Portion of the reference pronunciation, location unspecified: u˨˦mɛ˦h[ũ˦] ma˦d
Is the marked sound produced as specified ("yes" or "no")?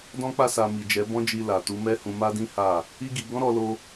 no